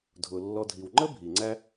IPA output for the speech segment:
dʱ ʊ˩ lː ɔ˨ dʱ i˩ w ŋ͡ǃ ə˥ bʱ i˩ ŋ͡ǀ æ˥

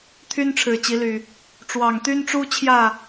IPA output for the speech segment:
t̪ʰ y˦ n ʈ͡ʂʰ ɻ̩˨˩ t͡ɕ i˨˦ l y˨˩ | ʈ͡ʂ w ɑ˨˩ ŋ t̪ y˦ n ʈ͡ʂ u˦ t͡ɕʰ j ä˥˨

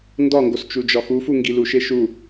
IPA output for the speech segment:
n d ɒ ŋ ɡ o s t͡ʃ u d͡ʒ ɒ x u f u ŋ ɡ i l u ʃ e ʃ u

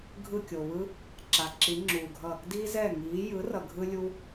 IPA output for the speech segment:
ɡʱ ɯ˧˩ kʲ o˩ β ɯ˧ | ǁ a˩ ǁ i˩˧ ŋ͡ǁ uː˩ ɡʱ ʌ˧˩ | d iː˧ z ɛ˧˩ ŋ iː˩˧ j ɯ˩˥ r ʌ˩ ɡʱ ɯ˧ lʲ u˧

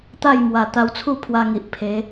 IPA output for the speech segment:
t̪ a˥˧ j m w a˨˩ t̪ a˧ w t͡sʰ u˥˧ pʰ w a˧ ŋ i˨ ʔ pʰ e˨˦

